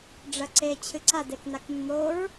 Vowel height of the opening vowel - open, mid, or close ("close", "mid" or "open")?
open